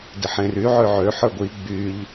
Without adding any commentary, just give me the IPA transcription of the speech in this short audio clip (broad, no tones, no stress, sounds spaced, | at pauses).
d e ħ ẽ r y ʕ ø ʕ ø ħ ə˞ ɡʷ i ɡ͡b y ʎ